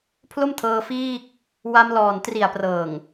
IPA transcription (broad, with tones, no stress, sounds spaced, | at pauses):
pʰ l o˥˩ m tʰ ɤː˧ f iː˥˩ k̚ | w a˧ m l ɔː˨˩ n t r i˨˩ a̯ p r ɤː˨˩ ŋ